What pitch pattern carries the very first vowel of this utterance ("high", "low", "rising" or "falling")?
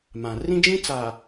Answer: low